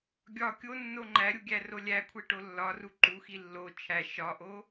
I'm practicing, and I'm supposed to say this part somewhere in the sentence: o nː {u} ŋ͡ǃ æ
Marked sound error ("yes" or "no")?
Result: yes